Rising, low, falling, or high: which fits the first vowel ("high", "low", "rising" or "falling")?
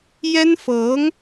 high